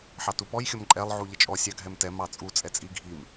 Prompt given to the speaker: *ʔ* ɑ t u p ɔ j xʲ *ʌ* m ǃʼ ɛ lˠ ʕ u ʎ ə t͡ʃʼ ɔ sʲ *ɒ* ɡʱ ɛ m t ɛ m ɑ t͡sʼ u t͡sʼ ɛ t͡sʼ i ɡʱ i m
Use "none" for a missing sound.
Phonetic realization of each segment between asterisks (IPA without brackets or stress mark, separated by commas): ħ, ʌ, ɑ